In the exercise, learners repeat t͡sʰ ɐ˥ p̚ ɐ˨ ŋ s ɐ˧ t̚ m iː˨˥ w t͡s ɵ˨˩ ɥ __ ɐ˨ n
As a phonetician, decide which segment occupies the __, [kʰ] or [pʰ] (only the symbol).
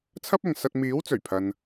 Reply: pʰ